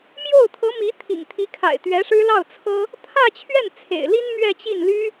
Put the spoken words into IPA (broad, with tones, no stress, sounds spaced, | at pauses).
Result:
m j o˥˩ ʊ̯ t̪ʰ ɤ˧˥ m i˧˥ t̪ʰ ḭ˨˩ ŋ t̪ʰ i˧˥ kʰ a̰˨˩ ɪ̯ t̪ ɥ ɛ˧˥ ʂ ɻ̩˥ l ɑ˥˩ ʊ̯ t͡sʰ ɤ˥ | t̪ʰ ä˥˧ t͡ɕʰ ɥ ɛ˥˩ n t͡sʰ ḛ˨˩ ɪ̯ l i˥ n m ɥ ɛ˥˧ t͡ɕ i˥˩ n l y˥